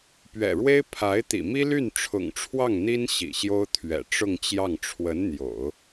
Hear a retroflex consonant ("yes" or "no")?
yes